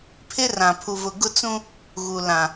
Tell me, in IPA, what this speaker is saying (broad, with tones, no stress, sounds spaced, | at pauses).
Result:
pʰ ɪ˦ r ã˨ pʰ u˨ v ʊ˨ ɡ ʊ˦ t͡s ũ˦ | ɣ u˨ l ã˨